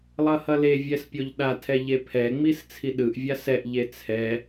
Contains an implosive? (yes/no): yes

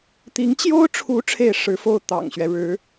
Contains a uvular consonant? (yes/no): no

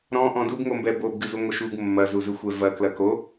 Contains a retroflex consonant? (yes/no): no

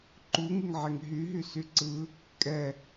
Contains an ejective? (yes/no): yes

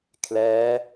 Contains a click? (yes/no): no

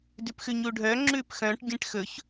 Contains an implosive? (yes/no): no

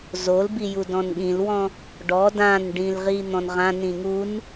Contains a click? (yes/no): no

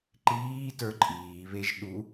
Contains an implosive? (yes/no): yes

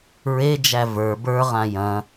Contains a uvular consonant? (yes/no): yes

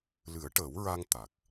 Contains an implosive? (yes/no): no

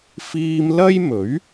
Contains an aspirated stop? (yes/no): no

